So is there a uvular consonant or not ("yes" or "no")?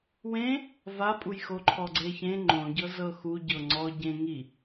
no